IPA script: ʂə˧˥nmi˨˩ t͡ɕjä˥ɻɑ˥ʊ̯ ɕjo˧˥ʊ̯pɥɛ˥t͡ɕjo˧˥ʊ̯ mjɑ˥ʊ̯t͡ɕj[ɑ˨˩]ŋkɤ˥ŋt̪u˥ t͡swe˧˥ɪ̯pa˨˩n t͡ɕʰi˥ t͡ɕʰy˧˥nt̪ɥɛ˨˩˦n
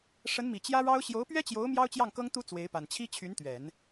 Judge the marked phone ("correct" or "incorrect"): incorrect